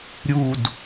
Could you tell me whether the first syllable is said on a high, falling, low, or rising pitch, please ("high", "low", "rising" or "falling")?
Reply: falling